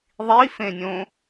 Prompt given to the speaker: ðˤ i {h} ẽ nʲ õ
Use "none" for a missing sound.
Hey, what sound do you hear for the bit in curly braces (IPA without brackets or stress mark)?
f